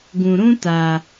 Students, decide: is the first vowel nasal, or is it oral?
nasal